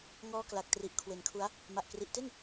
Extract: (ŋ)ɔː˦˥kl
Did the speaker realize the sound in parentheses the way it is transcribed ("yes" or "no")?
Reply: yes